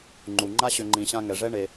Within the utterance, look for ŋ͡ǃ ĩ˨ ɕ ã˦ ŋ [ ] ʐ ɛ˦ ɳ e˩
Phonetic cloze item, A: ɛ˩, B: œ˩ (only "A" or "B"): A